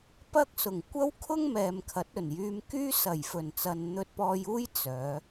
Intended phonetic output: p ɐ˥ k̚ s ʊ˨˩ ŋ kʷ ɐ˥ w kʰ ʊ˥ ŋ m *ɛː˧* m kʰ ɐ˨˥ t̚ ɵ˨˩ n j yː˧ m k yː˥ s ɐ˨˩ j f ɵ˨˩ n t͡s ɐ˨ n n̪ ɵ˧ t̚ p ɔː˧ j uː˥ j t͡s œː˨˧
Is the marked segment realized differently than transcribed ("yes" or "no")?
yes